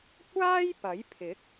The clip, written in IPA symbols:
kʷ aː˥ j p ɐ˨˥ j pʰ ɪ˨˥ k̚

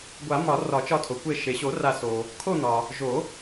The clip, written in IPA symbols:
ɡʷ a˨˩˦ m ɒ˨˩˦ r ɒ˨˩˦ t͡ʃ ɒ˦˨ tʰ o˩ kʷ e˦˨ ʃ e˩ ɕ o˨˩˦ r a˨˩˦ s o˩ | kʰ o˦˨ n̪ ɒ˩ | ʒ o˨˩˦

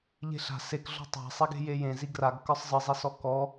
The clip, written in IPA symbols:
ʎ e̤ ɬ a̤ s e k ɮ ɔ̤ tˤ a̤ sˤ i ɡ e̤ j e j ẽ z i ɡ r a ɡ k ə˞ sˤ zˤ ɨ zˤ i s ɔ k ɔ

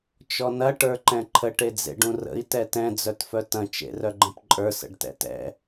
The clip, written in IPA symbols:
t͡ʃ ɔ n ɐ ʈ ə˞ ǃ ɛ̃ ǃʰ ə ʈ e d͡z ḛ ɖ ũ r ə̰ i̯ t ɛ t ɛ̃ d͡z œ t f œ t ɐ̃ t͡ʃ ḛ r œ ɡ͡ǃ ə̃ p ǃʼ ə˞ s ə̰ ɖ t ɛ̰ t ɛ̰

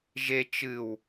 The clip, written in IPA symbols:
ʒ e t͡ʃ ɨ w

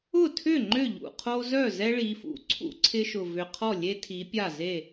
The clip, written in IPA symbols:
ʊ˥˩ tʰ ʏ˥˩ ŋ͡ǃ ʏ˥˩ ʎ ṵ˨˩ qʰ o˦ z œ˥˩ z ɛ˦ ɭ i˩˧ f ṵ˩˥ ǀʰ ṵ˦ ǀʰ ɪ˦ ʃ ʊ˨˩ v ʏ˨˩ qʰ ɔ˥˩ lʲ e˦ tʰ i˩˧ pʲ a˥˩ z e˥˩

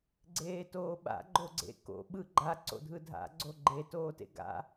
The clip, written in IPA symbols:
ɡ͡ǀ eː t oː ɓ a̰ ɡ͡ǃ o ɡ͡ǀ ḛ k o̰ ɓ ɯ ɡ͡ǃ a ǀ o̰ dʱ ɯ dʱ a̰ ɡ͡ǀ o ɡ͡ǃ e t oː t ḛ ɡ a̰

